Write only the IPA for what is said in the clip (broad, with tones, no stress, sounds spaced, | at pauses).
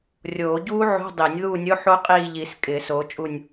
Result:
rʲ oː˨˩˦ ɟ uː˦˥ ʕ o̤˧˥˧ dˤ i˨˩˦ nʲ ð uː˦˨ nʲ o˧˥˧ ħ o˦˥ qʼ iː˦˨ ʎ i˨˩˦ s kʼ ɪː˨˩˦ s oː˨˦ t͡ʃʼ u˦˨ nʲ